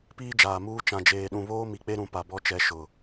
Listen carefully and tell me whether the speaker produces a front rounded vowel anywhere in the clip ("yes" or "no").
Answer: no